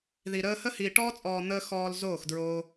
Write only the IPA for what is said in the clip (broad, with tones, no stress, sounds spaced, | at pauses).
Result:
ð i˨ ɾ əː˧ h ə˦ h iː˨ ʈ ɔː˦ t͡sʼ ɔː˨ n̪ əː˧ x ɔː˨ l z oː˦˨ x d ɹ oː˧